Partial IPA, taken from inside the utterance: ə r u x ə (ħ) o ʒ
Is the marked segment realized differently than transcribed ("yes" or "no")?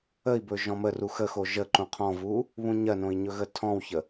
yes